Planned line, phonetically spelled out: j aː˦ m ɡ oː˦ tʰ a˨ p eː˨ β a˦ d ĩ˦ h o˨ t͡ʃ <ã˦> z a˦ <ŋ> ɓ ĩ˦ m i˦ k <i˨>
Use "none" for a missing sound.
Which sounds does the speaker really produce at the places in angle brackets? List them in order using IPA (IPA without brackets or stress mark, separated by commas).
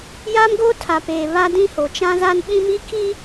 ã˦, n, i˦